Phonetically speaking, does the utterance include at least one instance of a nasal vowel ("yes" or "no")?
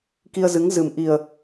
no